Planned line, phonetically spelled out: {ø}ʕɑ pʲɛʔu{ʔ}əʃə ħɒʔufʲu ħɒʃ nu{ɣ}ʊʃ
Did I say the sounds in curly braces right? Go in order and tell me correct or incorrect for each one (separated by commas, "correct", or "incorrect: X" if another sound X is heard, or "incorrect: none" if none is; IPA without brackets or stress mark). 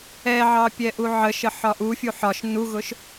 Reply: incorrect: ɛ, incorrect: ʕ, correct